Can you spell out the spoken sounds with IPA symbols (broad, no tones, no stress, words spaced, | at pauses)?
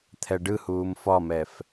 t̪ʰɛɖɯhuːm fɒmɛf